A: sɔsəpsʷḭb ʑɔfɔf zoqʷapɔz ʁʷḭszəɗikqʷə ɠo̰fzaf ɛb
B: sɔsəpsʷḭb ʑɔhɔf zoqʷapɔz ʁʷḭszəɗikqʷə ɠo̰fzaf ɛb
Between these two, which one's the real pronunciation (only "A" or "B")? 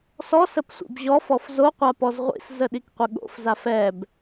A